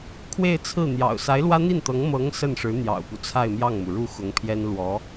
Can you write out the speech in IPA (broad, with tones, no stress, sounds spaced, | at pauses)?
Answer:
kʰ w e˥˧ ɪ̯ t͡sʰ ɹ̩˥˩ n̪ j ɑ̰˨˩ ʊ̯ s a˧˥ ɪ̯ l w ä˥ n̪ i˥˩ n t̪ ɤ˧˥ ŋ m ɤ˧˥ ŋ s ə˥˩ n ʂ ɻ̩˧˥ n̪ j ɑ̰˨˩ ʊ̯ p u˦ t͡sʰ a˥˧ ɪ̯ m j ɑ˥˩ ŋ m u˩ ɻ u˥˩ x ʊ˧˥ ŋ pʰ j ɛ˥ n l w ɔ˧˥